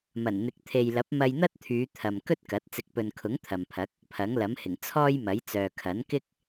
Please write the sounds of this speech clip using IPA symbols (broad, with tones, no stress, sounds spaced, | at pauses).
m ɐ˨˩ n n̪ ɪ˨˥ k̚ t̪ʰ e˨ j l ɐ˨˥ p̚ m ɐ˧ j n̪ ɐ˥ t̚ t̪ʰ yː˨˧ t̪ʰ ɐ˨ m k ɵ˥ t̚ k ɐ˨˥ t̚ t͡s ɪ˨˥ k̚ p ɵ˨ n kʰ ʊ˨˥ ŋ t̪ʰ ɐ˨ m pʰ ɐ˨˥ k̚ | pʰ ɐ˨˥ ŋ l ɐ˨˥ m h ɪ˨˩ ŋ t͡sʰ ɔː˥ j m ɐ˨˥ j t͡s œː˨ kʰ ɐ˨˥ n k ɪ˥ k̚